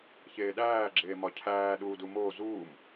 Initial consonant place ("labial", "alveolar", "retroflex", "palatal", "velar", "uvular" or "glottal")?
palatal